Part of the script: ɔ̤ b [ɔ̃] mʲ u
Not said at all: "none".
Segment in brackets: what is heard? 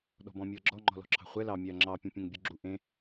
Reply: ɔ̃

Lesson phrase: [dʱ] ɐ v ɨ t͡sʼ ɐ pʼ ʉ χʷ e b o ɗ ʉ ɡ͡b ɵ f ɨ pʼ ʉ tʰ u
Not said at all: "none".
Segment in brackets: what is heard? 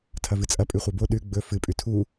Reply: tʰ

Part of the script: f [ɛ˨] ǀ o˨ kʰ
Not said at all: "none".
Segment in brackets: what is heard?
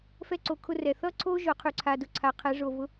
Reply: ɛ˦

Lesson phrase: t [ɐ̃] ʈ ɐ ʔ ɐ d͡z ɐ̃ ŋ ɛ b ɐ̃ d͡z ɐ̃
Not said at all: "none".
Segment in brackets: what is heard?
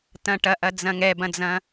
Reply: ɐ̃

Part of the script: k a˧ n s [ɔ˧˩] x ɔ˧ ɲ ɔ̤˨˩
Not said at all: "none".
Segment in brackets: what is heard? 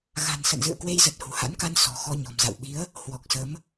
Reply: ɔ̤˨˩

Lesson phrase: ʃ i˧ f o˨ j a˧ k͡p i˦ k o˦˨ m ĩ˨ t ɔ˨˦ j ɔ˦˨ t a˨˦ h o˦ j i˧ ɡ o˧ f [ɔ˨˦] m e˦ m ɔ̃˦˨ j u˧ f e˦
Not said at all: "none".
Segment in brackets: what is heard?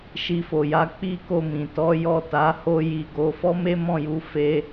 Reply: ɔ˦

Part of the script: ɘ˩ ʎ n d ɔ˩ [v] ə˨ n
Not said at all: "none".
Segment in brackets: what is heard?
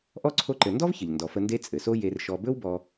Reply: f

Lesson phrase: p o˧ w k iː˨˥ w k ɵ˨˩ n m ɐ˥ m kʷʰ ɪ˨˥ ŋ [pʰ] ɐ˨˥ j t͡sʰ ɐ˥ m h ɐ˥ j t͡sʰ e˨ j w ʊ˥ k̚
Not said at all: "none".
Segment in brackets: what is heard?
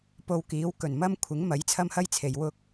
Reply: m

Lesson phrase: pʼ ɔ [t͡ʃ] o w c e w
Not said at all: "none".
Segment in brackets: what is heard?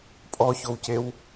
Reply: ç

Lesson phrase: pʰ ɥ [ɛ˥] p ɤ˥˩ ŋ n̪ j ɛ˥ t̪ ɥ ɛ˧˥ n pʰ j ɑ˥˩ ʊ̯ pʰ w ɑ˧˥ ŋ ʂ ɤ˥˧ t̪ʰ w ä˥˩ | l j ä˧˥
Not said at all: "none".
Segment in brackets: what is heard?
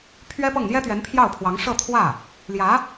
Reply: ɛ˥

